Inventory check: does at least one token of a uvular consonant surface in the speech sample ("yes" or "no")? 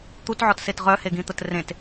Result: yes